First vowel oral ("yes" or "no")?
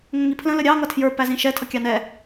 no